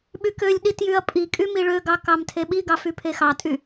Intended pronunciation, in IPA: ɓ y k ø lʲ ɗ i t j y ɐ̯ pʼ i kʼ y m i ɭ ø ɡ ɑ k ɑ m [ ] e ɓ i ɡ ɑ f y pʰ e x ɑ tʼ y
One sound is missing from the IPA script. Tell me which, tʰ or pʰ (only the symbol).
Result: tʰ